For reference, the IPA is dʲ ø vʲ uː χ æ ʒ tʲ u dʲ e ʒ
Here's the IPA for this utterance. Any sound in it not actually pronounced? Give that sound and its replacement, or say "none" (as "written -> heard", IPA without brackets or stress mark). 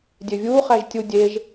none